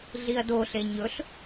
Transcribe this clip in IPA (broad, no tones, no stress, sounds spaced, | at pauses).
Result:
ɮ i ɐ̯ d o ɬ e ɲ ɵ ɬ